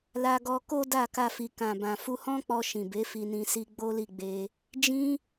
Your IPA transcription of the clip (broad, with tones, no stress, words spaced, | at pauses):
la˧ɡɔ˧ko˦ da˦˨ka˧fi˨ kã˨bã˨ fu˧hɔ̃˦k͡pɔ˧ ʃĩ˨be˨˦fi˧nĩ˧ si˧ ɡ͡bo˦li˦˨ɡ͡be˧ | d͡ʒĩ˦